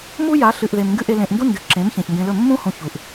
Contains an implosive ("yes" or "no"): no